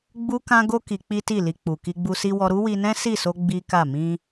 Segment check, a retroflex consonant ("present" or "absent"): absent